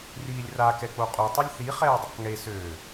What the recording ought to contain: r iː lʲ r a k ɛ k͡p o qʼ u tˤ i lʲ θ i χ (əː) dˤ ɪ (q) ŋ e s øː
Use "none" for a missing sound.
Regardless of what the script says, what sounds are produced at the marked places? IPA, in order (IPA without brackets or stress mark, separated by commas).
ɛː, q